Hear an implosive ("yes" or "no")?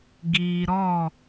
no